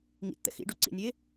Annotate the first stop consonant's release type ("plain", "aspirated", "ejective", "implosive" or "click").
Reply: plain